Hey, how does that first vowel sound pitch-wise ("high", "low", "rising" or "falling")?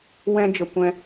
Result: high